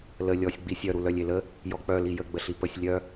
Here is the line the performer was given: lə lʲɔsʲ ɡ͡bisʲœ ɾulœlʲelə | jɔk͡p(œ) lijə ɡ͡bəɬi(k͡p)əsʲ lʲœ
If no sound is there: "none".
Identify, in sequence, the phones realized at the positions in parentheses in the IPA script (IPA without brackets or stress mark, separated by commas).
œ, p